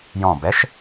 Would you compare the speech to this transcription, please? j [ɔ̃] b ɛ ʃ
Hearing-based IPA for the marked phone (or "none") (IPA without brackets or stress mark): ɔ̃